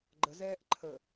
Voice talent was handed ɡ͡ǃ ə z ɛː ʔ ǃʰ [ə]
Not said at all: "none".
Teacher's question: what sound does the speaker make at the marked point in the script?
ə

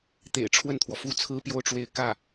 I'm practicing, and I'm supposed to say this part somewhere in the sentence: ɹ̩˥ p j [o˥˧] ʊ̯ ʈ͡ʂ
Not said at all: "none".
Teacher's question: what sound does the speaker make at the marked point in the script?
o˥˧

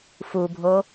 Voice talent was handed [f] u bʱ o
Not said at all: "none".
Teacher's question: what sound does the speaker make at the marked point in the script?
f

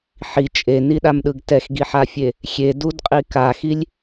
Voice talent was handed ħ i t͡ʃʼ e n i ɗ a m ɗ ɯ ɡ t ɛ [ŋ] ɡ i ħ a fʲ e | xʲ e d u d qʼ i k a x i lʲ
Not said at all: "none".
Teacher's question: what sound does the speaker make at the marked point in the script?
x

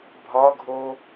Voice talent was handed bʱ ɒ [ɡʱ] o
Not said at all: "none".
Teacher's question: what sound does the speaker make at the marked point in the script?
ɡʱ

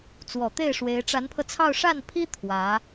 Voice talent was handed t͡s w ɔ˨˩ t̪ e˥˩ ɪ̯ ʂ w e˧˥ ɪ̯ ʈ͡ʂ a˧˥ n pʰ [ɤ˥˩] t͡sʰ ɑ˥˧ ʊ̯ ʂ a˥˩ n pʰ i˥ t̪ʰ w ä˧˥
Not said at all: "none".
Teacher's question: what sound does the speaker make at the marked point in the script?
ɤ˧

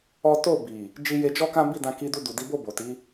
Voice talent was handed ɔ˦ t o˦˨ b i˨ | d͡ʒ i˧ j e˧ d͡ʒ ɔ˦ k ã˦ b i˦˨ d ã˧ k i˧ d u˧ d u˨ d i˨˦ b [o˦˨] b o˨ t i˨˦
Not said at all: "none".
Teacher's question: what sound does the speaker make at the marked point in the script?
o˦˨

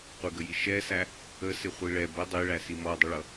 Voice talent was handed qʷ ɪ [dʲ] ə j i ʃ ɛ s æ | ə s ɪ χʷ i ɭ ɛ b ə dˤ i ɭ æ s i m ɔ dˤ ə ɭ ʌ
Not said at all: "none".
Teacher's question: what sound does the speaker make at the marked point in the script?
ɡ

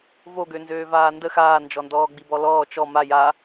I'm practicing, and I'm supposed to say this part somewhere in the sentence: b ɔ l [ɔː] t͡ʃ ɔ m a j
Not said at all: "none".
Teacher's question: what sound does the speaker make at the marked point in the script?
ɔː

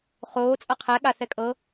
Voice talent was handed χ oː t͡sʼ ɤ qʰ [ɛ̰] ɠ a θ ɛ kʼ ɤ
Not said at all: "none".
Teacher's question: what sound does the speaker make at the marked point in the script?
ɛ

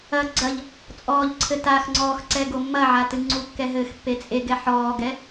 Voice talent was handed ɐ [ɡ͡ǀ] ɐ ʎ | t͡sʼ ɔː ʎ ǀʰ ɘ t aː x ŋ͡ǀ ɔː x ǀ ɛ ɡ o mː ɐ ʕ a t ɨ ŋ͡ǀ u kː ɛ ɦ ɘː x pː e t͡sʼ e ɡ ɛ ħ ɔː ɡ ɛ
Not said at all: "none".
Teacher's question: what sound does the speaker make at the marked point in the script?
ɡ͡ǀ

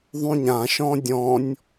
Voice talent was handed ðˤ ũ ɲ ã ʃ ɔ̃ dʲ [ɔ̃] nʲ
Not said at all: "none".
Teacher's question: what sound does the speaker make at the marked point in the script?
ɔ̃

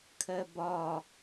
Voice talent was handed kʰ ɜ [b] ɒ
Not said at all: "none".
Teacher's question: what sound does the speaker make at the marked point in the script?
b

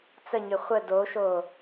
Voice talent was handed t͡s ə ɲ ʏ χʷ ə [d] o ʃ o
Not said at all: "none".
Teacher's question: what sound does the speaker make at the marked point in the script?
d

